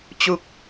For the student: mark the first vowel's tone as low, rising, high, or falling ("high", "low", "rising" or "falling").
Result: low